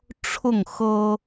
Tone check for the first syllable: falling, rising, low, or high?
falling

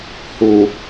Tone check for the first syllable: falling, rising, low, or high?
low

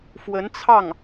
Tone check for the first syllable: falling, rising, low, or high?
rising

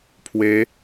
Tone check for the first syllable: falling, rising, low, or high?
rising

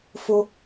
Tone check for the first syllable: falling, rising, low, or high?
high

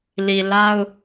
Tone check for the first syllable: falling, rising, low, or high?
low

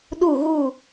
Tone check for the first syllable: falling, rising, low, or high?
low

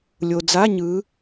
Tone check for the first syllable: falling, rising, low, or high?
low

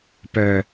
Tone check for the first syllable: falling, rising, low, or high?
low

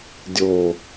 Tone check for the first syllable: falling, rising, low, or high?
low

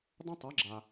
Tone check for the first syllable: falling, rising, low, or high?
high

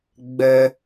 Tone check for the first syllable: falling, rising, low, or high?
high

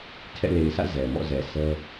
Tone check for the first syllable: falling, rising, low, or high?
falling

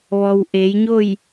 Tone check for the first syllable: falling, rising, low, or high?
low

